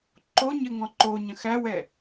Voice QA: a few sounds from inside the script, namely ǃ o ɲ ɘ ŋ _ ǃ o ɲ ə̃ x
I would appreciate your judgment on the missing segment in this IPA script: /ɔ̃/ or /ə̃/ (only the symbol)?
ɔ̃